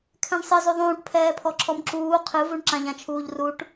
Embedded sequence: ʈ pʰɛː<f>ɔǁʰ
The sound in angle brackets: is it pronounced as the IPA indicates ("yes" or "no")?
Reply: no